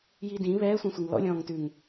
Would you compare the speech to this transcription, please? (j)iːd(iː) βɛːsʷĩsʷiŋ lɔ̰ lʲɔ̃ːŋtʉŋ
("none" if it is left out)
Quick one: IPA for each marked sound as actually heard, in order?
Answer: j, ĩː

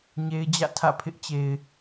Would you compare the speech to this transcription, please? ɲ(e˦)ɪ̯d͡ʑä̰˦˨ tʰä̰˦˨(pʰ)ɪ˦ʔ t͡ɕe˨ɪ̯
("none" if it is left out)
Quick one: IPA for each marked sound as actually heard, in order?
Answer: e˦, pʰ

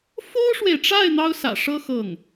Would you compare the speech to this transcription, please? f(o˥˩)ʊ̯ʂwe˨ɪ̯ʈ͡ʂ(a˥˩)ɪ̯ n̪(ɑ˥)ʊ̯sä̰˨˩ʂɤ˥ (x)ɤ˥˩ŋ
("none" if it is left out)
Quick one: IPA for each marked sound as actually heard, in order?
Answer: o˥, a˥˩, ɑ˥, x

